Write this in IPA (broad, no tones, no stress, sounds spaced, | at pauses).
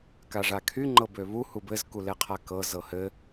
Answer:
k a ʐ a kʰ y ŋ͡ǃ ɤ b ø β u h u b ɘ z k u l ɛ qʰ a k ɤ z ɤ h ɘ